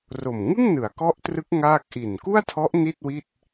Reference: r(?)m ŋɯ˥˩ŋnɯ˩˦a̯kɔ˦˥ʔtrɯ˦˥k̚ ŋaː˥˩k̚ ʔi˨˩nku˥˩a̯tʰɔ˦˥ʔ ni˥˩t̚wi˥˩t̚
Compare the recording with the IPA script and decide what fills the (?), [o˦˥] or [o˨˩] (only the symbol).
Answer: o˨˩